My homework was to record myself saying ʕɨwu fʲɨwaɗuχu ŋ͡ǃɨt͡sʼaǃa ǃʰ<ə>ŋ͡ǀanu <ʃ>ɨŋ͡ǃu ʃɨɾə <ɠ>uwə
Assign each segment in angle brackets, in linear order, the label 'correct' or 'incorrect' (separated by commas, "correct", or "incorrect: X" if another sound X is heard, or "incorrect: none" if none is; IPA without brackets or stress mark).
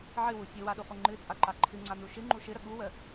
incorrect: ɨ, correct, correct